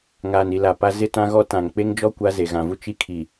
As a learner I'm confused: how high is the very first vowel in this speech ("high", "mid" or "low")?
low